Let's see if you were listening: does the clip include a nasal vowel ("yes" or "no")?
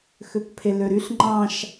yes